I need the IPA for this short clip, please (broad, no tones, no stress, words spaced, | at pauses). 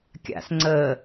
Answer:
kʲa̰s ŋ͡ǀəː